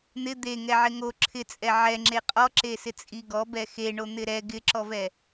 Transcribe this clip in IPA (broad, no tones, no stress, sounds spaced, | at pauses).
n̪ ɪ d̪ e ŋ ɛ ʕ ɪ ŋ o ǁʰ ɪ t͡sʼ ɛ ʕ ɛ ŋ͡ǁ e qʼ ɔ ǁ e s ɪ t͡sʼ i ɡ ɔ b ɛ x e ɳ o n̪ ɪ ɾ ɛ ɡ ɪ ǁ ɔ v ɛ